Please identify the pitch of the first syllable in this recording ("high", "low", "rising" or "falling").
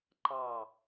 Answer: low